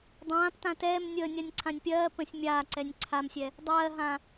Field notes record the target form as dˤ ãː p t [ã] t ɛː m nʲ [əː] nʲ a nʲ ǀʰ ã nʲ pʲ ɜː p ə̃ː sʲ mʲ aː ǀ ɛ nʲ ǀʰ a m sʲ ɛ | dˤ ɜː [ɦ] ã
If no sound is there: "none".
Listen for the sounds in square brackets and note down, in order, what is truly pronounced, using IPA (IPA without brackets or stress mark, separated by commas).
ã, əː, ɦ